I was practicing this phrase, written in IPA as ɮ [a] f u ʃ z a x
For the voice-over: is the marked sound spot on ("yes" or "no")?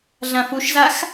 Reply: no